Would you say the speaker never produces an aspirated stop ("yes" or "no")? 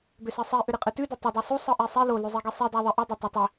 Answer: yes